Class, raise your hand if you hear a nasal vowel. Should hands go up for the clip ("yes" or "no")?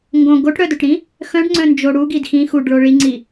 yes